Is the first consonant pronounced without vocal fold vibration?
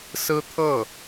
yes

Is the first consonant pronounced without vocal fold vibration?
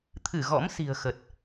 yes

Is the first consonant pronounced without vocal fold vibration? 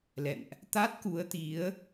no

